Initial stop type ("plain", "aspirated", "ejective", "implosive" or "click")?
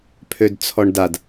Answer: aspirated